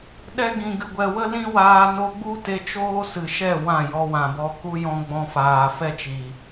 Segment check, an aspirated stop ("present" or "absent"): absent